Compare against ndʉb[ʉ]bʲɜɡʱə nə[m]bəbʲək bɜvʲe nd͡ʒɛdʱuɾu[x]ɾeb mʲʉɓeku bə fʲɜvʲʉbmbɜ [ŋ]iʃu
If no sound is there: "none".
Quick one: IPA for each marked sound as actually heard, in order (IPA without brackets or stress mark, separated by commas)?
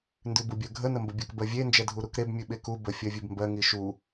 u, m, k, ŋ